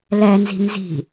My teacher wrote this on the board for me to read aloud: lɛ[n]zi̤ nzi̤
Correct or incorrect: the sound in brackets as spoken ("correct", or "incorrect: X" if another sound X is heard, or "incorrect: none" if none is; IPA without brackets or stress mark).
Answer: correct